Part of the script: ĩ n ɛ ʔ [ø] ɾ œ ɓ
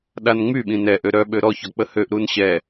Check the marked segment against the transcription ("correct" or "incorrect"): correct